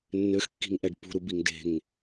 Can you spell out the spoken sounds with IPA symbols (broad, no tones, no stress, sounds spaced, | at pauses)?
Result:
nː ø x kː i̤ ŋ ʔ ɛ ɖ p ṳ ɾ u b i ŋ d e̤ ŋ